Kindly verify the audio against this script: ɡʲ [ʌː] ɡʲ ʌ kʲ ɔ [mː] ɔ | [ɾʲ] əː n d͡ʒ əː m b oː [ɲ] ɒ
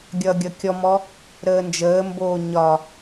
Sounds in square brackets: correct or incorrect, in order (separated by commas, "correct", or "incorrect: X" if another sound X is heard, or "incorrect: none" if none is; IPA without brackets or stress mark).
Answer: correct, incorrect: m, incorrect: ɾ, correct